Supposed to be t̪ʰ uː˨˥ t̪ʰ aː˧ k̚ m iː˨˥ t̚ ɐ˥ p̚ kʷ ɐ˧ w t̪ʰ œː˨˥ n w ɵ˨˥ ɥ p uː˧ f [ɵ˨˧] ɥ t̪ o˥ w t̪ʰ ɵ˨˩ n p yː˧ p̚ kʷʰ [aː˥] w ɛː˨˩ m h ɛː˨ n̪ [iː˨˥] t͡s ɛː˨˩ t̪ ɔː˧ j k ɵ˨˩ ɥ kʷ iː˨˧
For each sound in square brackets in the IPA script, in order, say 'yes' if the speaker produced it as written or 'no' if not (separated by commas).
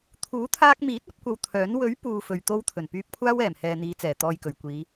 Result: no, yes, no